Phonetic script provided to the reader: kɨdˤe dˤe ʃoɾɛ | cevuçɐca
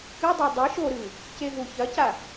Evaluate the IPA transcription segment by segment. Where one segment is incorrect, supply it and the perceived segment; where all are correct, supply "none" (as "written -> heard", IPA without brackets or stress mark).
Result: ɛ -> ɨ